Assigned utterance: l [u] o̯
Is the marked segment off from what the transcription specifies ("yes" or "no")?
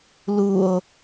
no